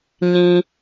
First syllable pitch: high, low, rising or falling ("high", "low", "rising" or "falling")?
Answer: low